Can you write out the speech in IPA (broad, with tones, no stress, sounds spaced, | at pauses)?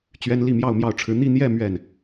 t͡ɕ ɥ ɛ˥ n l i˥˧ m j ɑ˥˧ ʊ̯ m j ɑ˥˩ ʊ̯ ʈ͡ʂʰ ɻ̩˧˥ n̪ i˥˧ n̪ j ɛ˥˧ m ɥ ɛ˥˩ n